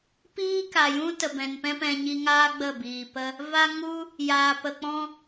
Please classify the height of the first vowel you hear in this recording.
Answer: high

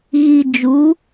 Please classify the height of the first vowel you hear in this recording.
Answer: high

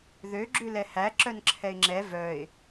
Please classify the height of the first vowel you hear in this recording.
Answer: mid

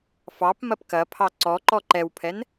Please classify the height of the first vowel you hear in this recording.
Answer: low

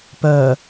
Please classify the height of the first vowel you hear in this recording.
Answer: mid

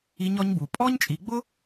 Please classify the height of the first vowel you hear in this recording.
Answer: high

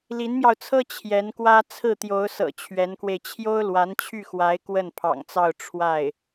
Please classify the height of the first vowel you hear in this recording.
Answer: high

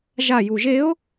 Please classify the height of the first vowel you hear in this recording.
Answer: low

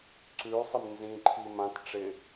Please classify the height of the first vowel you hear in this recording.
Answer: high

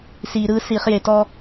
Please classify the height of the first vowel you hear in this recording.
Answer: high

